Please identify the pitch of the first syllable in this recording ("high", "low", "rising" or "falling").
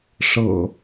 low